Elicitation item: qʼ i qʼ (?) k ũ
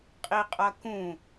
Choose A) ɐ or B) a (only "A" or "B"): A